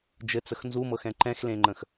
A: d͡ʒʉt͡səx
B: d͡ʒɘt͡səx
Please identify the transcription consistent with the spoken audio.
B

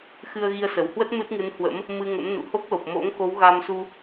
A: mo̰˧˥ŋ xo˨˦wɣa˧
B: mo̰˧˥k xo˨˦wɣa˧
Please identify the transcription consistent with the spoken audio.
A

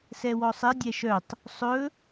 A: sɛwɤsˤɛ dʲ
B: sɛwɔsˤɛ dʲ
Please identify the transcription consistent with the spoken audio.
B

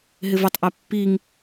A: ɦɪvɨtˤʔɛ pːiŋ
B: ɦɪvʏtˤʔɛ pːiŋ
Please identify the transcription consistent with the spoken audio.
B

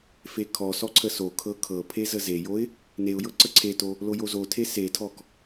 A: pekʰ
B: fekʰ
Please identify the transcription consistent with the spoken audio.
B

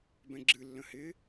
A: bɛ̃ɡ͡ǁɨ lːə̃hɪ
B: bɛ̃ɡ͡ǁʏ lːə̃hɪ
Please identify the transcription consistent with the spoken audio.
A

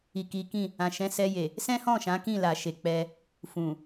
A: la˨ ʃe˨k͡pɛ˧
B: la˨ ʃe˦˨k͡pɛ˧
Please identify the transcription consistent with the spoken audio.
A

